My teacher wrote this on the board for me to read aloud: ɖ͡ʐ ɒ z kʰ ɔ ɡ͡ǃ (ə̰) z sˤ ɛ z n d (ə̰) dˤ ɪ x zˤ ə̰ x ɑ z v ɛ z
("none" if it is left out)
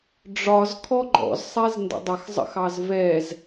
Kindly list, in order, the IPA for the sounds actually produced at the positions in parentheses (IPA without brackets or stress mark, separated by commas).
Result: ɔ̰, ə̰